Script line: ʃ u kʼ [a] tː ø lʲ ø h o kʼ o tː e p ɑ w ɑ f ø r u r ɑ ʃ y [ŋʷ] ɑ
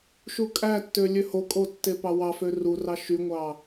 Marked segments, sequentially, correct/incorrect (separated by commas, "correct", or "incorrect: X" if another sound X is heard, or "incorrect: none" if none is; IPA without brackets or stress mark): incorrect: æ, correct